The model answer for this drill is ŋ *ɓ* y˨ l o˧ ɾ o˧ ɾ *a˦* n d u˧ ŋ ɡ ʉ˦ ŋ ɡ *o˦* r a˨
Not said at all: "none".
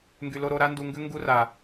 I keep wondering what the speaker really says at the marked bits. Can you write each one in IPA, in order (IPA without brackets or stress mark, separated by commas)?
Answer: ɡ, a˦, u˦